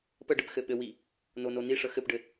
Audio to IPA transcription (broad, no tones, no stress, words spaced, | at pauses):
pəɖɘp xɘɓɘwi | nononiʂə xɘpɖɘ